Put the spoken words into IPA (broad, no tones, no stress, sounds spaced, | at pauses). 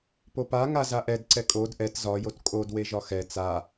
p o p a ŋ a z a ʔ ɛ d ǀ ɛ kʼ o d ʔ ɛ t z ɒ j o t kʼ o d w e ʒ ɒ x ɛ t͡s a